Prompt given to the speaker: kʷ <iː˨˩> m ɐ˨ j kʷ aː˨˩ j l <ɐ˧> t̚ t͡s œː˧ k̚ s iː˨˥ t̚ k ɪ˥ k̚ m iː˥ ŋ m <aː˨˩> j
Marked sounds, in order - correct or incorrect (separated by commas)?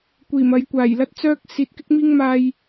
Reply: correct, correct, incorrect